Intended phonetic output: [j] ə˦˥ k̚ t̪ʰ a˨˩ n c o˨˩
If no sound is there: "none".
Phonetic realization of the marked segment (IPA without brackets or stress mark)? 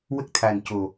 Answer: w